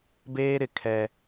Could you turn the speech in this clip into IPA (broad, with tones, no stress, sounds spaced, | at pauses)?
b eː˦ ɾ ɪ˨ kʰ ɛ˦